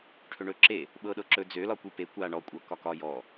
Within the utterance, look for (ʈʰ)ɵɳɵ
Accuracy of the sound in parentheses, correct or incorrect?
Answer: correct